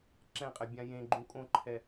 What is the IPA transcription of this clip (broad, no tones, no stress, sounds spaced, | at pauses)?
ǁ ɛ̃ qʼ ɛ bʲ ã j ẽ ɡ͡ǃ ũ kʼ õ ǃʰ ɛ